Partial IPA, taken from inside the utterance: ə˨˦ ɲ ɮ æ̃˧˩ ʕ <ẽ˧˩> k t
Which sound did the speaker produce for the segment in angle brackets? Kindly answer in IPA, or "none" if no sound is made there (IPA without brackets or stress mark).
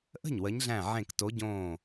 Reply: ẽ˧˩